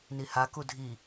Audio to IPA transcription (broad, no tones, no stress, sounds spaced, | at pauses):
n i h a k u dʱ i